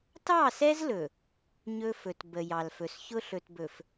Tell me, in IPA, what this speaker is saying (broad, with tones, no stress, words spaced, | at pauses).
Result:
tɑ˦˨sɛ˦zlɵ˨ | ɲɵ˦fɵ˨t bə˨jɑ˨lfɵ˨s çʊ˦ɬɵ˨tbɵ˨f